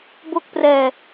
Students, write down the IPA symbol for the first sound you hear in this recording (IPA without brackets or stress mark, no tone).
b